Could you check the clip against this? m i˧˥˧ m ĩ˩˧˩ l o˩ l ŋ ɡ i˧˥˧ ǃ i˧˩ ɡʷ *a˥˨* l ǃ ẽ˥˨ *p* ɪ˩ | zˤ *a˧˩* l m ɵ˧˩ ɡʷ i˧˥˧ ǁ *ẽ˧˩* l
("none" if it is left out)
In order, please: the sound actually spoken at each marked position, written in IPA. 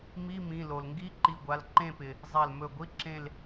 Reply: a˩˧˩, p, a˧˩, ẽ˥˨

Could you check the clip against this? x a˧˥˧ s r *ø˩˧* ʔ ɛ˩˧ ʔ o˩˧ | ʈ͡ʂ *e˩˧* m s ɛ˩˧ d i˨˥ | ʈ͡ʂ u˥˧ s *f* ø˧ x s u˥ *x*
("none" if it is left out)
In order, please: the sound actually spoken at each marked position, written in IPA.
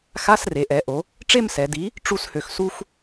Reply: e˩˧, e˥˧, h, x

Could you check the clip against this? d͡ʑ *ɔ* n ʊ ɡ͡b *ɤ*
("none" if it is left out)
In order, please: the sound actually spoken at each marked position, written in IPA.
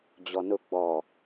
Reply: ɔ, ɔ

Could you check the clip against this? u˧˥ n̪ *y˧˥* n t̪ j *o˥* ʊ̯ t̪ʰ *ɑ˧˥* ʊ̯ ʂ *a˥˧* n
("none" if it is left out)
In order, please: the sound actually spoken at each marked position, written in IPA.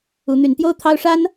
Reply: y˧˥, o˥, ɑ˥, a˥

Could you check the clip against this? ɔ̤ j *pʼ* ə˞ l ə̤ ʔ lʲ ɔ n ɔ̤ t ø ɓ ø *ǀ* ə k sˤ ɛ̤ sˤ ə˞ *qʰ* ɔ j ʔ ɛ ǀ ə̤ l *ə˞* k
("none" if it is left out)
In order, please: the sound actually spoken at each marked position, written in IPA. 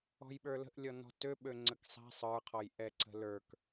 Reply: ɓ, ŋ͡ǀ, qʰ, ə˞

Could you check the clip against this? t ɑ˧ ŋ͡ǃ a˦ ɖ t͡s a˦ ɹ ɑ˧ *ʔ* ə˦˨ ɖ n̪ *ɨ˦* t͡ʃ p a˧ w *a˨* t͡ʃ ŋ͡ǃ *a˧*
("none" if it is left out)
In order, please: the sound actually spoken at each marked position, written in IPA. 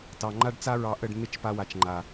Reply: ʔ, ɪ˦, a˨, a˨

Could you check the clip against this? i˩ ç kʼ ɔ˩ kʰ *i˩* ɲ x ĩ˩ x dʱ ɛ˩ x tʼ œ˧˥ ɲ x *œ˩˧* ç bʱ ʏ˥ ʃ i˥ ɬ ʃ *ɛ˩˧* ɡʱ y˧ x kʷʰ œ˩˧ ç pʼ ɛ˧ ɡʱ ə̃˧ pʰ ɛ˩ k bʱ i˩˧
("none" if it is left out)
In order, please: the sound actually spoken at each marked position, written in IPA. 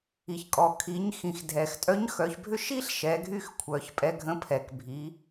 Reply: i˩˧, œ˩˧, ɛ˩˧

